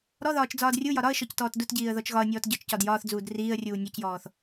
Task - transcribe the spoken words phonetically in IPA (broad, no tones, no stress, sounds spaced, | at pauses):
ɾ ɔ ð ɒː t͡ʃ d͡z ɒː d rʲ u j ɒ ɾ ɒ ə̯ ʃ ɔ c t ɔː t d u t ɟ iː ə̯ ð ɔ t͡ʃ ɣ ɒ ə̯ nʲ ɔː t ɟ ɒ t͡ʃ c ɒ d j ɒː θ d͡z uː d r iː ə̯ rʲ uː nʲ ɒ c j ɔː θ